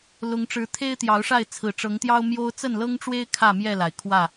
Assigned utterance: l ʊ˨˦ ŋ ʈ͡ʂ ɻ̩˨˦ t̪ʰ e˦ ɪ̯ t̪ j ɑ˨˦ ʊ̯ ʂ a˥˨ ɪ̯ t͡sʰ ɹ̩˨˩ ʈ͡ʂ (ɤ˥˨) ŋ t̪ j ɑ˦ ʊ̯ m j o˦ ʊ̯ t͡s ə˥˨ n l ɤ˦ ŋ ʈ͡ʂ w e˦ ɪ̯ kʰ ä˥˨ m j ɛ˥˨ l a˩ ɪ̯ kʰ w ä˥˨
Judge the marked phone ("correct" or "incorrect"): incorrect